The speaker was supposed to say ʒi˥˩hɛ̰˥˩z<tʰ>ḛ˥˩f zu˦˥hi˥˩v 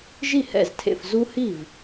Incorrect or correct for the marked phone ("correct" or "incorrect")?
correct